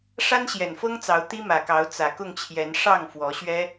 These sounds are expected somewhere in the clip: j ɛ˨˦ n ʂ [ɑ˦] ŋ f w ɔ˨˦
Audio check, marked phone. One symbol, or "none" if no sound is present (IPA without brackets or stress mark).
ɑ˥˨